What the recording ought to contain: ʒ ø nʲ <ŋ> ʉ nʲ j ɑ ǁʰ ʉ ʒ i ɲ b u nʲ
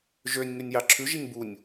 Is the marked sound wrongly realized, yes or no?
no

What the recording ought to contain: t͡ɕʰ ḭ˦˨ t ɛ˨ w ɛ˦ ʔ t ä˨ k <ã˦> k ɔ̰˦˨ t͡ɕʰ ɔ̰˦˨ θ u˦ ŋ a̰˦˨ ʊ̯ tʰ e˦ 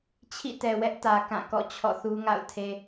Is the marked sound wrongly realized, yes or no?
yes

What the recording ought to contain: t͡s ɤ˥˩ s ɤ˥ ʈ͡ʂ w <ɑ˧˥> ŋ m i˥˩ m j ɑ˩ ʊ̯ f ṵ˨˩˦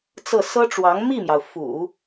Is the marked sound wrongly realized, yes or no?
no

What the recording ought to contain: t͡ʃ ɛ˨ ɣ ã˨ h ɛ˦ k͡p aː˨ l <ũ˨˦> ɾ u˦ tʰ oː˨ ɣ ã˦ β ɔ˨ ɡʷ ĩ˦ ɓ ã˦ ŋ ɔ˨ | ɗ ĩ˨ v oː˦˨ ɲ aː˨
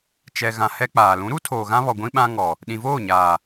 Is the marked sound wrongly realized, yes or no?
no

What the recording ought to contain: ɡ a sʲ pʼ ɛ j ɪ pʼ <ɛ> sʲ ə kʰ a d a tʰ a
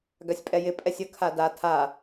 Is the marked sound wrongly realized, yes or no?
no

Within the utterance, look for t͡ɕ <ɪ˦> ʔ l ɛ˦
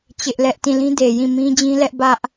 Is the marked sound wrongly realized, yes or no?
no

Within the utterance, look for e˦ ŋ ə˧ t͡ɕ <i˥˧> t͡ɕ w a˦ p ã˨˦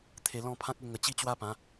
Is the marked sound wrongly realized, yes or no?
no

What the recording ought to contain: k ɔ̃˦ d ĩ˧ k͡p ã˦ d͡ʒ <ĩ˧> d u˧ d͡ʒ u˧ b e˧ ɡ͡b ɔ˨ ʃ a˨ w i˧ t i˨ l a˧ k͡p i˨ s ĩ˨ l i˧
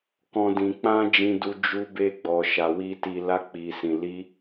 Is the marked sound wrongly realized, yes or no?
no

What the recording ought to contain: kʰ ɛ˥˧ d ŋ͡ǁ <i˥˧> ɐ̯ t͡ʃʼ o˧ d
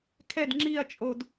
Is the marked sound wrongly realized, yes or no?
no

